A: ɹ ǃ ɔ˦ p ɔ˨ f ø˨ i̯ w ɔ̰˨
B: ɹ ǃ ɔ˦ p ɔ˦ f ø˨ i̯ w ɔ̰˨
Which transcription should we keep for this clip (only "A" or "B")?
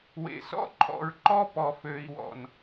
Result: A